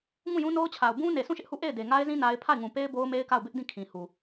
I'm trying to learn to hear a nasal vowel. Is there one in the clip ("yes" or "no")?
yes